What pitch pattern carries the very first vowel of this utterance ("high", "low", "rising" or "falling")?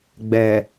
low